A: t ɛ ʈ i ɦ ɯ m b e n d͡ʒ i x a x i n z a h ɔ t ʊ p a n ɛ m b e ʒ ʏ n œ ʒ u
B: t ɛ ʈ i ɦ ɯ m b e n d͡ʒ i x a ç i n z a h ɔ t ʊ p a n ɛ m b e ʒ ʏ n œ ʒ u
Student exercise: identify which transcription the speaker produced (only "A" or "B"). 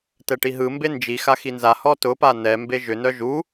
A